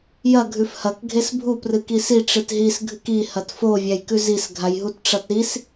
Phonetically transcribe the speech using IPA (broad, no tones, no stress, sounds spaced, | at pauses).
j ɐ ɡʱ ʉ f h ɐ k ɡʱ e s bʱ u p r ɨ k i s i ʈ͡ʂ ɨ t ɦ i s ɡʱ ɨ k i h ɐ t f o vʲ a j k ʉ z i s ɡʱ a j ɦ u t ʈ͡ʂ ɐ t ɾ i s